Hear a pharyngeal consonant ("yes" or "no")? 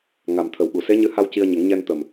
no